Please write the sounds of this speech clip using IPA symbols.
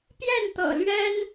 pjɛ˥˨nt̪ɤ̰˨˩lɥɛ˦n

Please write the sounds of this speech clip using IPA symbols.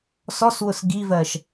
sɔswʊs ɡivɜʃ

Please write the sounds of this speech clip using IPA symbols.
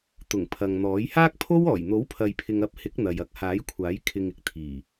t̪ʊ˨˩ŋpʰɐ˨ŋn̪ɔː˨˥j haː˥k̚pʰo˥wɔː˨˩j n̪o˨˥wpʰɐ˨jpʰɪ˨ŋ ɐ˧p̚hɪ˨˥k̚ n̪ɐ˨jɐ˧k̚ haː˨˥jkʷʰaː˨˥j kʰɪ˨ŋɪ˨k̚ t̪ʰiː˨˩

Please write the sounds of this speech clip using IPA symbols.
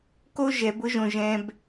ko˦ ʒɛ˨˦bʊ˦ʒõ˧ ʒɛ̃˦b

